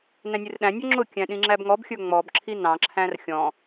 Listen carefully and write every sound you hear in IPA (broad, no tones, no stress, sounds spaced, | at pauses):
n æ̃ nʲ u r ɗ æ̃ nʲ ɔ ŋ͡ǁ ʊ kʲ æ̃ ɗ ĩ ŋ͡ǁ æ b ŋ ɔ b xʲ ə˞ ŋ͡m ɔ b ǁʰ i n ɑ̃ ǁʰ æ̃ r xʲ ɔ̃